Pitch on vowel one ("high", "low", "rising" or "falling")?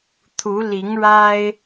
rising